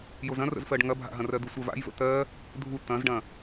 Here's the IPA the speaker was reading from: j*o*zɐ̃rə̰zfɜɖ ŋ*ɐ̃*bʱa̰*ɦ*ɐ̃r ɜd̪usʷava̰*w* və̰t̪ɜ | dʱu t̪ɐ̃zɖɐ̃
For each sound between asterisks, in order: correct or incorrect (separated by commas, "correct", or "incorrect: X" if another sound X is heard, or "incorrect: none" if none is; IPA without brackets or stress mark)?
correct, incorrect: ɐ, correct, incorrect: j